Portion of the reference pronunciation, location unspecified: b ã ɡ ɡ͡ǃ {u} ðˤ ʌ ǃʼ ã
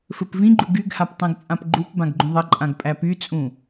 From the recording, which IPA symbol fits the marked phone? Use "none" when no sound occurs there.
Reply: ũ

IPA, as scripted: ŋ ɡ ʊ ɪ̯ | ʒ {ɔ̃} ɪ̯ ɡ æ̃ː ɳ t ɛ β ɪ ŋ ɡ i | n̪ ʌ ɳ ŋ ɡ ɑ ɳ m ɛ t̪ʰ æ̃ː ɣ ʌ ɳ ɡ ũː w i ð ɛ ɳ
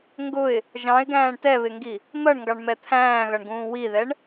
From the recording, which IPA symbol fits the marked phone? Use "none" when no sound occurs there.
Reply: ɑ̃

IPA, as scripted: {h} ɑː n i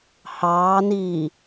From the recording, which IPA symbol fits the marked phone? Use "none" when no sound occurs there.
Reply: h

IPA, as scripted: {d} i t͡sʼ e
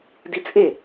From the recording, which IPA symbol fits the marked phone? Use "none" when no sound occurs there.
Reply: d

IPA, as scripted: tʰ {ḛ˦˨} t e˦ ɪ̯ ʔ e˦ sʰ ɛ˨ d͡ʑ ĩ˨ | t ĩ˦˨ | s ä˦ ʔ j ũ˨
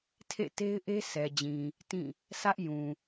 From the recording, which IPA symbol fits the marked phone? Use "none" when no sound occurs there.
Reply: ḛ˦˨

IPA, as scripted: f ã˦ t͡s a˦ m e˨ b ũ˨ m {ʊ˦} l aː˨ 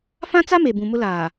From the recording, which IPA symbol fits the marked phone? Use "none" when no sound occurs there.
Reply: ʊ˦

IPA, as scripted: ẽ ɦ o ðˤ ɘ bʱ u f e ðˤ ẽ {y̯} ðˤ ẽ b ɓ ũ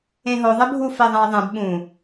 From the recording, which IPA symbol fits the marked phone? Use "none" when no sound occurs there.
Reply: i̯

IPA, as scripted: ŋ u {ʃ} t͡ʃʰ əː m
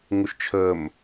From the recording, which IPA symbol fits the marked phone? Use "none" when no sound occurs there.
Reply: ʃ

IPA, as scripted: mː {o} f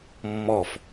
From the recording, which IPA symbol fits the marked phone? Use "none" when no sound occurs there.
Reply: ɔ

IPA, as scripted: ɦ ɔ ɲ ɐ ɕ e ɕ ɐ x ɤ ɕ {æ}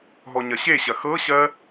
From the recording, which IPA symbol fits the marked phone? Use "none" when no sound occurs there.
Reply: ɜ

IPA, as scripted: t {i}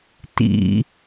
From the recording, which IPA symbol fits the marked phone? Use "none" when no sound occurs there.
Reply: ḭ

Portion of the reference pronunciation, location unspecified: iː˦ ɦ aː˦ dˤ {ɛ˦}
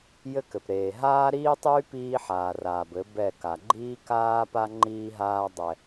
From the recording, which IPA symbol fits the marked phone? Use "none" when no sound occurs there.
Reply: ɛ˦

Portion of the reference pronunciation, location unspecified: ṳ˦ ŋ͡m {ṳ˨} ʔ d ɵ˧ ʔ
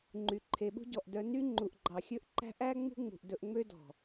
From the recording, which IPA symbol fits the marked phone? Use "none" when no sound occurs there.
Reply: ṳ˨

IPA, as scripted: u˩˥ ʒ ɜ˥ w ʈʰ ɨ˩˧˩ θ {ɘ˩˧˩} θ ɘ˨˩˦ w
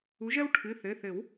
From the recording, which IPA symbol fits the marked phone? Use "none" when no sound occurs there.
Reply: ɘ˩˧˩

